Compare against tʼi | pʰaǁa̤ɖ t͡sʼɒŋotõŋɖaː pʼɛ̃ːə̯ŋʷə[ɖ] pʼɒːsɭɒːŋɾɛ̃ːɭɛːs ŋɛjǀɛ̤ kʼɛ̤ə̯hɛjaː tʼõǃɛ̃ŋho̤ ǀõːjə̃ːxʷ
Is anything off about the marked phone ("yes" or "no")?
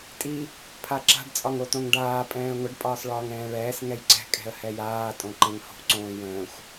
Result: no